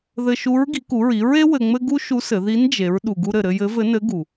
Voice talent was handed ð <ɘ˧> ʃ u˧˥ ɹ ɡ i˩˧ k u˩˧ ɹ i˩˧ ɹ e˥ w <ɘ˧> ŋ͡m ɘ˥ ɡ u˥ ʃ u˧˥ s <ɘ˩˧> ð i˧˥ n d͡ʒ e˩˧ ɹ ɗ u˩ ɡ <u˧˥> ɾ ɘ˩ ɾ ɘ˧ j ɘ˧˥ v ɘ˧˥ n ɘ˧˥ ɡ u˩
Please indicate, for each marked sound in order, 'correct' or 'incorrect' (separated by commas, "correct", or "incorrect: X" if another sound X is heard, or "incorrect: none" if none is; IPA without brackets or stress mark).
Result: correct, correct, correct, incorrect: u˧